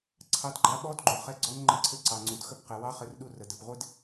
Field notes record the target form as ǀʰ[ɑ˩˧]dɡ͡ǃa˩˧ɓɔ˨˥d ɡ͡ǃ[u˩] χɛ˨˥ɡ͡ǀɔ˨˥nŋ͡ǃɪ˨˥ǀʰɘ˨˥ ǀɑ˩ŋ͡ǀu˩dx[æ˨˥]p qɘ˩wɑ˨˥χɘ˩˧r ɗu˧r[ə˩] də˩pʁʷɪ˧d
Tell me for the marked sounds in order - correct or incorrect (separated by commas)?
correct, correct, incorrect, correct